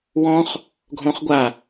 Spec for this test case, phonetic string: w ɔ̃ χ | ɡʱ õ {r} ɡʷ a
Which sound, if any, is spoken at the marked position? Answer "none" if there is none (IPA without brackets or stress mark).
χ